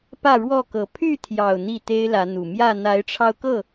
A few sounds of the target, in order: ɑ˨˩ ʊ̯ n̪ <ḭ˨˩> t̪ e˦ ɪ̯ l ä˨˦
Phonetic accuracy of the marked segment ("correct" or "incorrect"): incorrect